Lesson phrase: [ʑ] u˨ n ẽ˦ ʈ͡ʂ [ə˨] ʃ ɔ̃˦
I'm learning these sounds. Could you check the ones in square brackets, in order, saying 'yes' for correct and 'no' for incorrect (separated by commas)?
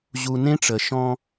yes, yes